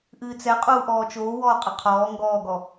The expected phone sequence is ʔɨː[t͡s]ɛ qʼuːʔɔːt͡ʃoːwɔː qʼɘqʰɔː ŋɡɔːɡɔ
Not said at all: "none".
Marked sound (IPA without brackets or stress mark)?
t͡s